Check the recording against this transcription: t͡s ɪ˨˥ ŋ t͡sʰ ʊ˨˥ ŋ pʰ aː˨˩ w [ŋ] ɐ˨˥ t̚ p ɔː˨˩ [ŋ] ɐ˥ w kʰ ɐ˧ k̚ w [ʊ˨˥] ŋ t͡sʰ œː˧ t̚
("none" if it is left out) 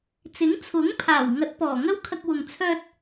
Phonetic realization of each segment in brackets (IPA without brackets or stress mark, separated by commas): ŋ, ŋ, ʊ˨